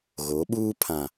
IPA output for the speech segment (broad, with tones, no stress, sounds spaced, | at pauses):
ɣ o˨˦ ɓ uː˦ pʰ ã˨